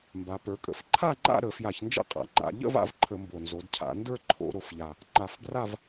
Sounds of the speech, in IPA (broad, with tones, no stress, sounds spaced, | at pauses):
m b a˩˧ p ə˞˩˧ kʼ ə̰˩˧ f ǃʰ a˥˧ ŋ͡ǃ a̰˥˧ ɾ ə˧˩˧ f j a˧˩˧ ç n d͡ʒ ə̰˥˧ qʼ a̰˨˩ ŋ͡ǃ a̰˧˩˧ ʎ ə̰˥˧ v a̰˧˩˧ v ǃʰ ə˧˩˧ m b o˨˩ n z o˩˧ d cʰ a̰˧˩˧ n d ə˞˥˧ ǃʰ o̰˧˩˧ ɾ o˩˧ f ʎ a˨˩ | ŋ͡ǃ a˧˩˧ f b r a˥˧ v